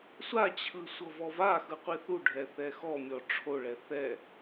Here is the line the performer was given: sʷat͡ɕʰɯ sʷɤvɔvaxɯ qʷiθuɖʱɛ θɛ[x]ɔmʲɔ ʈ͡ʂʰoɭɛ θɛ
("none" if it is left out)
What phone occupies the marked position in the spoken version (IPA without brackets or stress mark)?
x